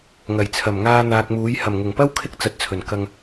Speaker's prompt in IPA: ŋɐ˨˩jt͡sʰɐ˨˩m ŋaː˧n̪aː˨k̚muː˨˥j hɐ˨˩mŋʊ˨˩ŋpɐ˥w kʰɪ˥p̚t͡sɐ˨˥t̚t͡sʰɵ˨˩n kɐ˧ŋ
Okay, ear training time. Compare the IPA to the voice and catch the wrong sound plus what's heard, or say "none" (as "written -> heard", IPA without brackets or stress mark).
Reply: p̚ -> k̚